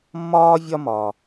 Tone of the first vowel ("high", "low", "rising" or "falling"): high